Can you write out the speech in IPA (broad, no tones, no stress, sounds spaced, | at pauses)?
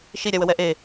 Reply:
ʃ i ɾʲ a w ə w ɛ ʔ e